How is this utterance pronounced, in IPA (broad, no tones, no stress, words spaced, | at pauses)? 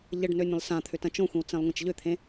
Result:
ʎəɖnø nʲə̃lˠsãt̪ʰʏ tɐ̃t͡ʃõxʷĩw t͡sẽlˠŋʷãt͡ʃʎʏt̪ʰẽ